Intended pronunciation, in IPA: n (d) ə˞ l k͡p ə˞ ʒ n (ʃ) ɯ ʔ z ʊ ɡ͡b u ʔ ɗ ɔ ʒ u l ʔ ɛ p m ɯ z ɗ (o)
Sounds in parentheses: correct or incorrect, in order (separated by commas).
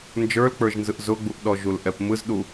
incorrect, incorrect, incorrect